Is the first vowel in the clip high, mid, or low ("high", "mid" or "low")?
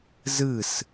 high